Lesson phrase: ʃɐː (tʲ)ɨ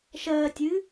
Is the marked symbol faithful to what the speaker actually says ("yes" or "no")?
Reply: yes